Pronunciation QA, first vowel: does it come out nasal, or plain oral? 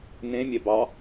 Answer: nasal